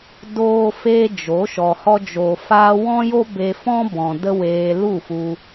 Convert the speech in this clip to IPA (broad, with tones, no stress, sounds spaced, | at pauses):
d oː˦ f eː˦ d͡ʒ o˨˦ ʃ ɔ˨ h ɔ˧ d͡ʒ o˨ f aː˧ w ɔ̃˦ j o˦ b e˧ f ɔ̃˦ b ɔ̃˨ d ə˦ w eː˧ l u˦˨ f u˧